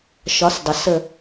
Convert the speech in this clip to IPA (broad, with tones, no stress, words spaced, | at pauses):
ʃɒ˨˥sdˤə˩ sə˦˨